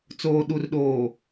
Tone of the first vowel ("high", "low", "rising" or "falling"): low